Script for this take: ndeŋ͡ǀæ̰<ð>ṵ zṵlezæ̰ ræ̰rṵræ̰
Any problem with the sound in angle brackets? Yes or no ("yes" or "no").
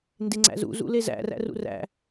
yes